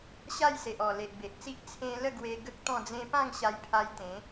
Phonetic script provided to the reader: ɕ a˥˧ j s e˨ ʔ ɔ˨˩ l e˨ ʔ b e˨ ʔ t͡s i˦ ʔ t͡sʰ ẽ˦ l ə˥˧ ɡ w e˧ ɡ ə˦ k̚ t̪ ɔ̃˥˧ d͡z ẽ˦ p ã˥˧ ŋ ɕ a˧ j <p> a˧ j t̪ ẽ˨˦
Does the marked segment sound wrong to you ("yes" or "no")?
yes